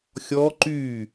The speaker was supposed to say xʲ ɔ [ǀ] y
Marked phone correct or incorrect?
incorrect